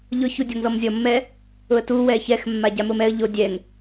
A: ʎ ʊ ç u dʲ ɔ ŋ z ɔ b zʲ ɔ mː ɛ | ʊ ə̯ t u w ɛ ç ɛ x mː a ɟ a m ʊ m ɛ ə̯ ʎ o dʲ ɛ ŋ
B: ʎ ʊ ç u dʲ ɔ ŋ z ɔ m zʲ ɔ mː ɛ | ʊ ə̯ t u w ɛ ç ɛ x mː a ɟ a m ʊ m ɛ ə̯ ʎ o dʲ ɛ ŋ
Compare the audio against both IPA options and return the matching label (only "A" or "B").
B